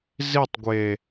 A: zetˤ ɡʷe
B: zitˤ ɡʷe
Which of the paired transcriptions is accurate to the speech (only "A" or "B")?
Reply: B